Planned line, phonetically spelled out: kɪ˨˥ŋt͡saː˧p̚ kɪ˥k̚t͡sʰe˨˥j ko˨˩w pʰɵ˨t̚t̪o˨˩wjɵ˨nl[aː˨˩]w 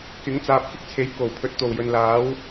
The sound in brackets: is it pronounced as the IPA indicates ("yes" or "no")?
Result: no